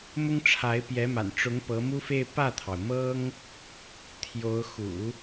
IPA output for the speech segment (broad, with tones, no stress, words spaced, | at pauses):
mʊ˥ŋʈ͡ʂʰa˧˥ɪ̯ pjɛ˧˥ma̰˨˩n ʈ͡ʂʊ˧˥ŋ pɤ˧˥mu˥fe˥˧ɪ̯ pä˥˩t̪ʰɑ˩ʊ̯mɤ˥ŋ | t̪ʰjo˧˥ʊ̯ xṵ˨˩˦